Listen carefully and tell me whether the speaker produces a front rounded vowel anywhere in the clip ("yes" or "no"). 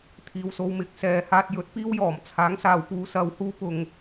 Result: no